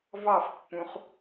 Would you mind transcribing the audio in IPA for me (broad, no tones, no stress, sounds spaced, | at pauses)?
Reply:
v ɑ f pː ũ χ